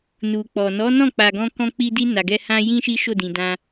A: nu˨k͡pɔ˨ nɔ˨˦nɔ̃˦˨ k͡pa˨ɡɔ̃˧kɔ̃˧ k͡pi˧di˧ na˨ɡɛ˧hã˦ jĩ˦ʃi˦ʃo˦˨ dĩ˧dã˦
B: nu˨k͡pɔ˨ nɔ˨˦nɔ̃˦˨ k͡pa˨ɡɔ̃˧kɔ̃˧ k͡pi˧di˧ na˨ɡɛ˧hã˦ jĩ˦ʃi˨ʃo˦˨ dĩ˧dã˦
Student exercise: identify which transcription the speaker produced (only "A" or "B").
A